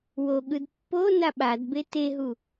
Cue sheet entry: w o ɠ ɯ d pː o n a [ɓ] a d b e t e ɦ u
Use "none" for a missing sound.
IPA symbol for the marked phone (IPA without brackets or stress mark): ɓ